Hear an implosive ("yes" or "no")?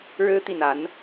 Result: no